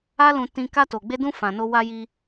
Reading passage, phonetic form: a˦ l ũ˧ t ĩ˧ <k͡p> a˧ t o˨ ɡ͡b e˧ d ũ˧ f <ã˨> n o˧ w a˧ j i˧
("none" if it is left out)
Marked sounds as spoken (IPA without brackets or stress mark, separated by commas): k, ã˨